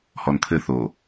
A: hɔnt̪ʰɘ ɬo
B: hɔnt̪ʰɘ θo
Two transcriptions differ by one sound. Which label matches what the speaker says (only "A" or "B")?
B